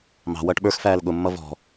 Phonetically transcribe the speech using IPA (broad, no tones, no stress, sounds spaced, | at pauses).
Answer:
m ɑ̤ w ʌː ʈ ɓ ə˞ x f æː l ɠ ʊ mː ʌ v ɔ̤